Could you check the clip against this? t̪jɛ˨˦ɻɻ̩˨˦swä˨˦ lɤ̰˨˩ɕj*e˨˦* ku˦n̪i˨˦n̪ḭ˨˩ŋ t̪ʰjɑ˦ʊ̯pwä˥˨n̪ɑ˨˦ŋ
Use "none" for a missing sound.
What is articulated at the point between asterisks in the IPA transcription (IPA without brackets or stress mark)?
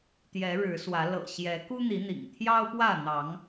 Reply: ɛ˨˦